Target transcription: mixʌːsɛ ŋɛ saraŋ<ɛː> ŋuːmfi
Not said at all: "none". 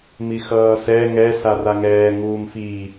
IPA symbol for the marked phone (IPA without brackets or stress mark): ɛː